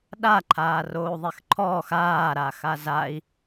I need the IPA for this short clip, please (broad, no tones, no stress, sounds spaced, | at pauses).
ɗ a ǃʰ aː r oː u̯ ðˤ e x ǃʰ ɔː x aː ɾ a x a z a i̯